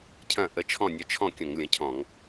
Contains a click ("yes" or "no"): no